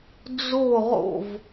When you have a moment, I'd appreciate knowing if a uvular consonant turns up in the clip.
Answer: yes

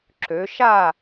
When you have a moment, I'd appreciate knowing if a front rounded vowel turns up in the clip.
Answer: yes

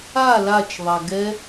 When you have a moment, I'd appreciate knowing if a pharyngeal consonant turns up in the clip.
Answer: no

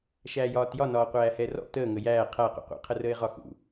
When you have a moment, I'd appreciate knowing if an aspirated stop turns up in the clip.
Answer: yes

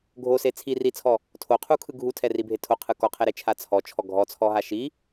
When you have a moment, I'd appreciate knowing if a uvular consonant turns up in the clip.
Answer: yes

